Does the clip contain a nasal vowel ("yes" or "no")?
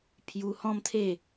yes